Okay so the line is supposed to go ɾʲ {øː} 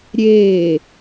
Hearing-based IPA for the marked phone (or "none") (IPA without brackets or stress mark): eː